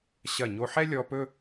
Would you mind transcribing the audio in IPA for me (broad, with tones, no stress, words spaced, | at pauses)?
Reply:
ɕɐ˧˩ɲo˧ħɛ˥ lʲɔ˧ pɵ˥